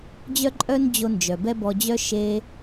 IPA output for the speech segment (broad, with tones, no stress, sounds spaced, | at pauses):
d͡ʑ œ˥ ǃʼ œ˥ n d͡ʑ o˧ n d͡ʒ œ˩ b ɛ˥ b ɔ˧ d͡ʑ œ˥ ʃ e˧